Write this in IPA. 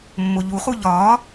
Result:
mː o ʎ u χ u ʎ ɒː

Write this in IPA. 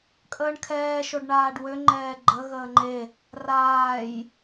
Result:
kʼ əː ɳ kʰ ɛː ʃ o ɖ ɳ aː ɖ w ø ŋ͡ǃ ɛː ɡ͡ǃ ə ɣ əː ŋ͡ǃ e | r aː j

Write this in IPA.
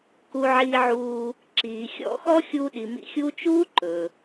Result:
k u˨ ʕ iː˨ ʕ uː˨ | ǁ iː˩ xʲ ɔ̰˦ x ɔ˥ xʲ uː˦ ɗ i˨ m ḭ˦ xʲ uː˥ t͡ʃ uː˥ ǃ ɵ˩

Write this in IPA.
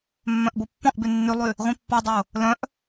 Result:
mː œ̃ ʔ b o pː ɔ̃ ʔ b y nː y lˠ y | ʁʷ ĩ pː ɔ dˤ o | l œ̃ ʔ

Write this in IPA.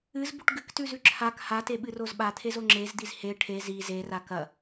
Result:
ɨ z b u ʈ ɡ ɨ k t ʉ z ʉ ǁʰ a k h a t e ɓ ɨ r o z ɓ a t̪ʰ e z o ŋ͡ǁ e z d̪ i z h e ʈʰ e z i z e r a k ɐ

